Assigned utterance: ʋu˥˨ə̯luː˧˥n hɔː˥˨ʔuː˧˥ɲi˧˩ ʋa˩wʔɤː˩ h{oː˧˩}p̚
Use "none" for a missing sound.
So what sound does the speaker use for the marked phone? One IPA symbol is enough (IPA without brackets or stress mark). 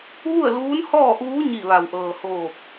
oː˧˩